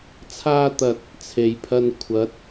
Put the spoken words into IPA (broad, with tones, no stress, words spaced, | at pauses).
t͡sʰaː˥t̪ɐ˧t̚ | t͡sʰe˨jpʰɐ˧n kʷʰɐ˨˥t̚